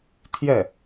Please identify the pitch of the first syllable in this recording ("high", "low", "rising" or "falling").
falling